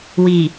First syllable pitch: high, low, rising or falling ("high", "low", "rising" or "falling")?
low